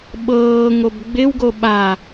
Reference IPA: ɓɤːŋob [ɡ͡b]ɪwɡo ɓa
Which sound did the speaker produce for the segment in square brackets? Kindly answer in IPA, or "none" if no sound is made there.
ɡ͡b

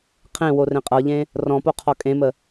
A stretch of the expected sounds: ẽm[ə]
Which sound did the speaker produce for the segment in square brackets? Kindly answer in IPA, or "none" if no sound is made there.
ə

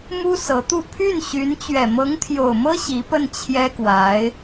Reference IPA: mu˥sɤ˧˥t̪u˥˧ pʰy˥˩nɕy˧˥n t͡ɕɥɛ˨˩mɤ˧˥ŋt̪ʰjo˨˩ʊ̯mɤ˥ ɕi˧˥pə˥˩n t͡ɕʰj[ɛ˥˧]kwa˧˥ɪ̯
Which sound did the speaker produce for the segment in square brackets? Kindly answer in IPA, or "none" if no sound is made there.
ɛ˥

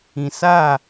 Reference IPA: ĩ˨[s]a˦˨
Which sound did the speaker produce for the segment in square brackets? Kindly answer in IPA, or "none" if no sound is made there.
s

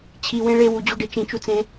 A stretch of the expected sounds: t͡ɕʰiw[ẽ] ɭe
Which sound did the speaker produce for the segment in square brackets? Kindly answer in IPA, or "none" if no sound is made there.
ẽ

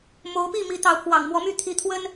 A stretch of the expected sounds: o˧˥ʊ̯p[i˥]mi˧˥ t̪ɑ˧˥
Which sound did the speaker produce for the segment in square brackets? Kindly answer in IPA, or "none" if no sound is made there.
i˥˩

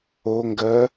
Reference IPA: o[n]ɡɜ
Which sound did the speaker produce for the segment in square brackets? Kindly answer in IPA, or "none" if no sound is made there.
ŋ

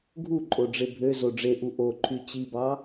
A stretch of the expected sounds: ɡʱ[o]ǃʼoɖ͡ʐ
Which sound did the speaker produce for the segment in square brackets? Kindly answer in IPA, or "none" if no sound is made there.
u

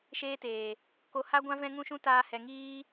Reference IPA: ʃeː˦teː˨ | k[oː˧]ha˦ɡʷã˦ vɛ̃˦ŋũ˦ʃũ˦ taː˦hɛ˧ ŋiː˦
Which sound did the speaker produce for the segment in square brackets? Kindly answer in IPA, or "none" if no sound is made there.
o˧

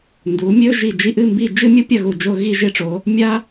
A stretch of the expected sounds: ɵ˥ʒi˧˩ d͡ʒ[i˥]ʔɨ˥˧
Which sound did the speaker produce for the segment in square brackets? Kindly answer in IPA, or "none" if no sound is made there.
i˥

